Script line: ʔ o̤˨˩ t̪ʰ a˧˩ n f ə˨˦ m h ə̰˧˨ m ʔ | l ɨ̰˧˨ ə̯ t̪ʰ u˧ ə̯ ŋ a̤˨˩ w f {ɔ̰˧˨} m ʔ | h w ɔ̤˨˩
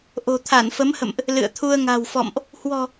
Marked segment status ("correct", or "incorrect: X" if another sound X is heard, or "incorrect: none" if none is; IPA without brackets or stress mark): correct